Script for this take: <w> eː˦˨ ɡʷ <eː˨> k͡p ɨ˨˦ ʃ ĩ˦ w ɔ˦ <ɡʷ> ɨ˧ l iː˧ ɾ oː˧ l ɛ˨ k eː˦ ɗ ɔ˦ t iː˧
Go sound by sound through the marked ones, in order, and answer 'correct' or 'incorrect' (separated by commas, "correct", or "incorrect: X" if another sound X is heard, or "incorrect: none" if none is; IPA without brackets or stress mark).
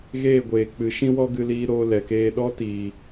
incorrect: ɣ, correct, incorrect: ɡ